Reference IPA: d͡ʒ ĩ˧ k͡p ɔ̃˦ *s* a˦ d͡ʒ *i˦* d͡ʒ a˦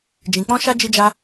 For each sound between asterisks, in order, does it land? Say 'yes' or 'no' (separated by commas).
no, yes